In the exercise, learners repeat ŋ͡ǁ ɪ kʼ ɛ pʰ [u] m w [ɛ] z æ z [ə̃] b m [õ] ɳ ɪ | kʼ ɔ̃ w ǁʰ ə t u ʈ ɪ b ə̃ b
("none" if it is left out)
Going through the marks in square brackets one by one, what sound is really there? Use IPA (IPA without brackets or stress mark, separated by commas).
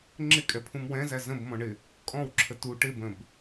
ũ, ɛ̃, ə̃, ɔ̃